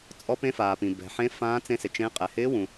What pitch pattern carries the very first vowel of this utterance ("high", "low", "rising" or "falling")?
rising